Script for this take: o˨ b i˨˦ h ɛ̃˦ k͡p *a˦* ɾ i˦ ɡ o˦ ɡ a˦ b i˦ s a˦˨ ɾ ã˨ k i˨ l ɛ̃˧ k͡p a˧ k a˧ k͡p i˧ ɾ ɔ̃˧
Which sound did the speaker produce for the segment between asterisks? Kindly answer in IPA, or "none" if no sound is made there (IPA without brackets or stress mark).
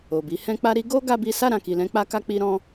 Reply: a˦